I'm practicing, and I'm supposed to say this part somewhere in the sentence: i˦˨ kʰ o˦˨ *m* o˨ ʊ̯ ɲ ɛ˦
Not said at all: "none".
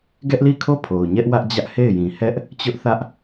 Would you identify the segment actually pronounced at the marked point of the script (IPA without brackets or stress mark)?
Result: pʰ